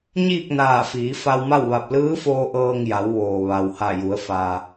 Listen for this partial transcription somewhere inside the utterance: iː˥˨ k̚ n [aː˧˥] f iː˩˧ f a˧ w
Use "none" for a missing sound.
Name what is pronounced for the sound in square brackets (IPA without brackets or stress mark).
aː˧˩